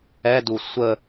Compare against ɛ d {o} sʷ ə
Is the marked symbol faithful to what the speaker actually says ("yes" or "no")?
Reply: no